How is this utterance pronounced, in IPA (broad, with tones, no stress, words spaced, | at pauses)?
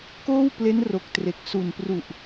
koː˥˩wple˦˥nro˨˩k̚tre˨˩k̚ su˨˩npru˨˩ʔ